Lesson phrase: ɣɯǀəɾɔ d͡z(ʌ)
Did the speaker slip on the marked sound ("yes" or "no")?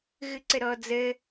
yes